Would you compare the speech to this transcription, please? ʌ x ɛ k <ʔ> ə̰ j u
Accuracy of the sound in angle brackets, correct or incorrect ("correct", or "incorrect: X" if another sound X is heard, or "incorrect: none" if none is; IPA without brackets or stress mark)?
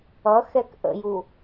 correct